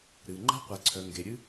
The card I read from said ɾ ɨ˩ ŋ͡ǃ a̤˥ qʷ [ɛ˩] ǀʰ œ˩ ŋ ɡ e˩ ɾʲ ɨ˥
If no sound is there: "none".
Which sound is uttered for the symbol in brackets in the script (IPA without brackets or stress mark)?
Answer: ɛ˩